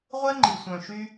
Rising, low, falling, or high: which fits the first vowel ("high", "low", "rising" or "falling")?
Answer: high